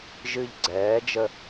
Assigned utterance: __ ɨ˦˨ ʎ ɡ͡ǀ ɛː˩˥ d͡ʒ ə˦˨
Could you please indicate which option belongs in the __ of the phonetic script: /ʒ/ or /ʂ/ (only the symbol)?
ʒ